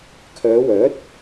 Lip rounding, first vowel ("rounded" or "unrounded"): rounded